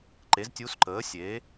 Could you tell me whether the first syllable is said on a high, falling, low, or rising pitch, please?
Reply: rising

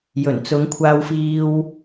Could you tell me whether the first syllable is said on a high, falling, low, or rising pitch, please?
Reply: low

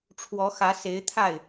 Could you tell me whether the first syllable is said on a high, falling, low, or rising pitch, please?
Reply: rising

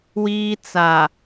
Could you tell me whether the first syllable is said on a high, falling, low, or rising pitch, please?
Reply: high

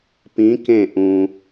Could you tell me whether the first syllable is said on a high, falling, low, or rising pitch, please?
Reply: rising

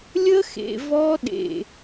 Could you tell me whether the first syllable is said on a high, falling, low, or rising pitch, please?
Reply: high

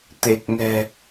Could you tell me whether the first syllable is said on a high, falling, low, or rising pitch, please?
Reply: low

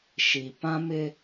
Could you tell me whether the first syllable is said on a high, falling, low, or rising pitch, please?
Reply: low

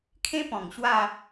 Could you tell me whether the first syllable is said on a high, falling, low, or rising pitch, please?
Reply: high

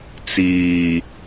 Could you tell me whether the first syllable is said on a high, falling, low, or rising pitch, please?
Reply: low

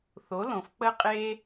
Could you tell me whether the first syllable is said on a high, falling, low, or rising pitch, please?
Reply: rising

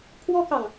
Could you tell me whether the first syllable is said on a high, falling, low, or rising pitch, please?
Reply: high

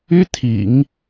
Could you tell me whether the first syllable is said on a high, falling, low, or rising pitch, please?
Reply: high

